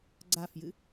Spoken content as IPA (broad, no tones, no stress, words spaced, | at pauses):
ɡ͡ǀafjɨ